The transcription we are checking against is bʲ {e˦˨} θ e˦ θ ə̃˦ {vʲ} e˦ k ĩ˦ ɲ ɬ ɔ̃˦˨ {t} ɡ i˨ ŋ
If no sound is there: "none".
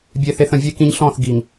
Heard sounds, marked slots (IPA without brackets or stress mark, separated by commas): e˦˨, vʲ, θ